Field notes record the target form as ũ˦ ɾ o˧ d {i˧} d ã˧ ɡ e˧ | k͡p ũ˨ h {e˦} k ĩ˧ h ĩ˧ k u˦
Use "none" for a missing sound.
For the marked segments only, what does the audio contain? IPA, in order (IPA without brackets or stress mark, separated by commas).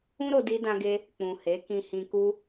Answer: i˧, e˨˦